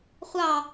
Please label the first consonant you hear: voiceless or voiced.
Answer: voiceless